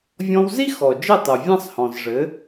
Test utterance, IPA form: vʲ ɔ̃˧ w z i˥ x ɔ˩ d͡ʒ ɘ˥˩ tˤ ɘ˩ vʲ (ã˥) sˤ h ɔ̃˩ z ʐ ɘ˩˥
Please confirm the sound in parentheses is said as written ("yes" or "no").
yes